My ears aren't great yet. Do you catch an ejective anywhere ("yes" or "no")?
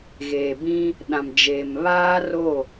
no